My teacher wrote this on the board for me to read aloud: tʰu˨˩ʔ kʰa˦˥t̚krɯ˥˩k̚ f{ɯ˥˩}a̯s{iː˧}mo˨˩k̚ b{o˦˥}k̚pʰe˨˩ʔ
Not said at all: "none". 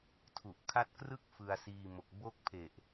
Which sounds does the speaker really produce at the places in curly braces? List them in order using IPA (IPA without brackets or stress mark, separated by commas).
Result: ɯ˧, iː˧, o˥˩